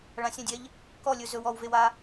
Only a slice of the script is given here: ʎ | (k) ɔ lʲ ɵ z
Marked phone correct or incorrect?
correct